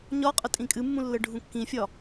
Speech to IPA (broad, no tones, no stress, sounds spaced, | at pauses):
ɲ ɒ qʼ ə tʼ ĩ kʼ ɨ mː ũ lː ə ɖʱ ũ kː ĩ fʲ ɒ